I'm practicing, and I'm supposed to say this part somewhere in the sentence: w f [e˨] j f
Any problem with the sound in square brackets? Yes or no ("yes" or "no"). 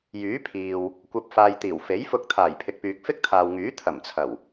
yes